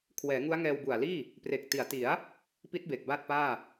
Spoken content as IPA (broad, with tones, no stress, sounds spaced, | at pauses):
kʰ w ɛː˩˦ ŋ u˦˥ a̯ ŋ ɛː˧ w b u˨˩ a̯ l iː˥˩ | p r e˨˩ k̚ t i˩˦ a̯ t i˩˦ a̯ | p i˦˥ t̚ b e˨˩ k̚ b a˥˩ t̚ p aː˥˩